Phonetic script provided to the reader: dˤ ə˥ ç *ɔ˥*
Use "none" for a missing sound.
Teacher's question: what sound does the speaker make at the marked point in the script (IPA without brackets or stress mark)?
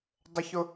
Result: ʊ˥